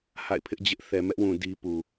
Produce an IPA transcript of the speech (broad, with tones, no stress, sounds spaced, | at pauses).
h a̰˦˨ ɪ̯ pʰ ɪ˦ ʔ d͡ʑ ɪ˦ ʔ θ ɛ˨ m ɛ˦ ʔ w ũ˨ d i˦ p u˨